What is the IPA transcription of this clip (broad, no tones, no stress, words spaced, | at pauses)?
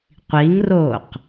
qʷiŋroːq